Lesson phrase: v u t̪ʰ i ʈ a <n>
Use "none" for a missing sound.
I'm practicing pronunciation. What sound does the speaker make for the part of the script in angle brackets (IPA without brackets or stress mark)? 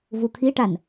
n